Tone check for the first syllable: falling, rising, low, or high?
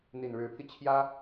low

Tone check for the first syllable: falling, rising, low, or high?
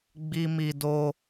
high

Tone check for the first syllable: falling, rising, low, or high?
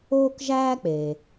high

